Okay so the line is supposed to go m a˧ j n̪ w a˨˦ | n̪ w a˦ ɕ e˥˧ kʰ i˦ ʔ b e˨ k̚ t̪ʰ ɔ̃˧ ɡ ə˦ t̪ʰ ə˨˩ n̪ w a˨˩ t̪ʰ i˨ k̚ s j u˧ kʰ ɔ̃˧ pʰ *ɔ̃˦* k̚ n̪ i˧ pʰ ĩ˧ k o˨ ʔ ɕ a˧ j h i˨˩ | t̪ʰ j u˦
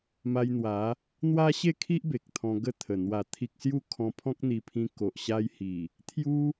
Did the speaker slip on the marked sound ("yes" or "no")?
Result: no